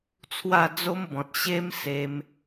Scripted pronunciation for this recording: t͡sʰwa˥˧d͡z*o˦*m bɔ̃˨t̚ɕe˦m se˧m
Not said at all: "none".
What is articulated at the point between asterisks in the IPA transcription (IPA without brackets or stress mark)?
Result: o˦